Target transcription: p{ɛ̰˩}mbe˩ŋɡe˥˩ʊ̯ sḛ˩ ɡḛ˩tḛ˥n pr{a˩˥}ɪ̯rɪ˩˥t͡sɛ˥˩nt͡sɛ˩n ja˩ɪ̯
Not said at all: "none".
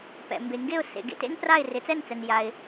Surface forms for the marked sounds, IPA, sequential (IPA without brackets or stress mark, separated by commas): ɛ̰˩, a˥˩